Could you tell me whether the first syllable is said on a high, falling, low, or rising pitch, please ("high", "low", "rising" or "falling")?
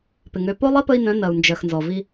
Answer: low